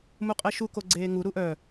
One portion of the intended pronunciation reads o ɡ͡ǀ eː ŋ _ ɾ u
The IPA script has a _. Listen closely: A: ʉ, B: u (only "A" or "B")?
B